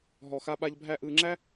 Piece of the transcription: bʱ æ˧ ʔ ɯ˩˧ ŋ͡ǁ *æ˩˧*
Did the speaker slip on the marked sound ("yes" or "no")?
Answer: yes